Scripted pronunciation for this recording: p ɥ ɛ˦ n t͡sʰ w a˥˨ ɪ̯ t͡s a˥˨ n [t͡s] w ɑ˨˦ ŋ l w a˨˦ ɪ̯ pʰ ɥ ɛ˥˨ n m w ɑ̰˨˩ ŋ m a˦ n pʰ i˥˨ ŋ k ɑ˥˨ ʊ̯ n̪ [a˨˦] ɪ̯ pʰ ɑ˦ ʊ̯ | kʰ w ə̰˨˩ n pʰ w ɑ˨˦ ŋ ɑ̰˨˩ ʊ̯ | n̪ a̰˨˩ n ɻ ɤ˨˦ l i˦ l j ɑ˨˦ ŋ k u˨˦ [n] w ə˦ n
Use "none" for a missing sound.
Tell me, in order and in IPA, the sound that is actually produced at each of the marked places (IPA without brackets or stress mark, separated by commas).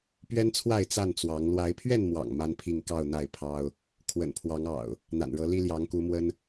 t͡s, a˥˨, m